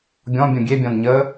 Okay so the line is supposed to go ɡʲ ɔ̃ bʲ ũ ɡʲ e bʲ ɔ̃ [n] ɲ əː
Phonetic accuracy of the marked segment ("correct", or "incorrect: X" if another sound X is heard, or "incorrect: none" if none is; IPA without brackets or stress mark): correct